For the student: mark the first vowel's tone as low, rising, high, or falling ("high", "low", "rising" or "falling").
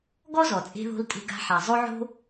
high